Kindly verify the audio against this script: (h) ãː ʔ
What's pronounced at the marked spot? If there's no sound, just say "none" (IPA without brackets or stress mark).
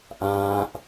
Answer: ʔ